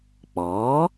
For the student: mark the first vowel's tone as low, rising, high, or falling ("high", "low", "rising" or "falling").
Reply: rising